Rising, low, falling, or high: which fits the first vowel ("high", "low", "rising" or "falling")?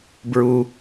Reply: high